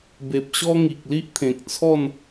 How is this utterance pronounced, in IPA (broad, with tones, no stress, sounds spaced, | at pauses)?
b e˨ p̚ ɕ ɔ˦ ŋ i˨ k̚ l i˦ ʔ t̪ʰ ẽ˨ k̚ t͡sʰ ɔ˥˧ n